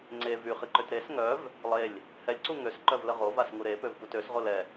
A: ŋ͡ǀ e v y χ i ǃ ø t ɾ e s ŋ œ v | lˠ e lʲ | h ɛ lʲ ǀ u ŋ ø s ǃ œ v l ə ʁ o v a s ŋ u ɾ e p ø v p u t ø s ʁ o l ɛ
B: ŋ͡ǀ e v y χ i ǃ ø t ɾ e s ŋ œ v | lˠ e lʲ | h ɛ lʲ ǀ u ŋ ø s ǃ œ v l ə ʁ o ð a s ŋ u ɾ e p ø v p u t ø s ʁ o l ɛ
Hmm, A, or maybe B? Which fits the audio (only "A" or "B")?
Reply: A